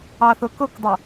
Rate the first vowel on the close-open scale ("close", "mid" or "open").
open